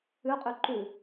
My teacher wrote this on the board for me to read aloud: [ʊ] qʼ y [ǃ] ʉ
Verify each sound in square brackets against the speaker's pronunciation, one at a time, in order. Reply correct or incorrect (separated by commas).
incorrect, correct